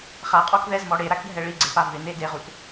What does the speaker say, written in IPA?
χ a qʼ ɔ k ð ɛ z m ɔ ɽ e ɾ a k ɖʱ ɛ ɭ i ɡ͡ǀ e p a v ɪ n e d e ʁ u t

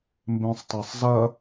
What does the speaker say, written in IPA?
m b ẽ sˤ tˤ æ sˤ z ɐ

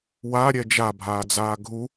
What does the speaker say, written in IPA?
w a ɾʲ ɛ d͡ʒ a bʱ aː d͡z aː ɡʱ u

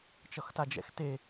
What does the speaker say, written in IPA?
t͡ʃ ʌ x t a d͡ʒ ɛ̰ x t e

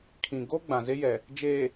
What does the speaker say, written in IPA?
kʰ ĩ˨ ɡ o˦ ɡ͡b ã˨ z e˦ j ɛ˨ | d͡ʒ eː˨

